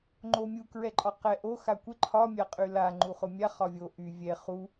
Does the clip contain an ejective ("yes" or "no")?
yes